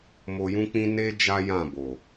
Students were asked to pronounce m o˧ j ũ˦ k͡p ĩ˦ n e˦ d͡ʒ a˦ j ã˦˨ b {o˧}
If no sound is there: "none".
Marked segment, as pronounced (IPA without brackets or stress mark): o˨